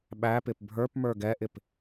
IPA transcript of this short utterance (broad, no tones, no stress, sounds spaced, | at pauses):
ɓ æ p ɪ p bʱ ə˞ p m ə˞ ɡ ɛ ʔ ɪ p